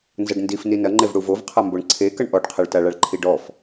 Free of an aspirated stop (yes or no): no